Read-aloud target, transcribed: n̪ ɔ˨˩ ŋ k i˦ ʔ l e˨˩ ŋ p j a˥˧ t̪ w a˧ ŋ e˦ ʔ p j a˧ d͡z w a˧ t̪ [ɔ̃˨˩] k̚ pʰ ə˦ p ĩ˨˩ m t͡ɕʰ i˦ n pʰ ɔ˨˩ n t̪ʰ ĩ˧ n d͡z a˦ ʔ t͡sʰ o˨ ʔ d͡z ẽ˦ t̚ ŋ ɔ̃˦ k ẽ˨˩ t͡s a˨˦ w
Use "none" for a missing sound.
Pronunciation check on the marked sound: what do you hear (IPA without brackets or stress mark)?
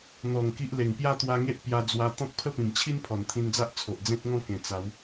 ɔ̃˦